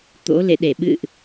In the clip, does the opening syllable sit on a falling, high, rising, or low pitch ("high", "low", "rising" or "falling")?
rising